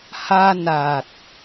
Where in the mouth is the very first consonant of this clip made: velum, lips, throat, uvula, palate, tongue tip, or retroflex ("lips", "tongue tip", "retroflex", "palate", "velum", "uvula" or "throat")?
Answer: throat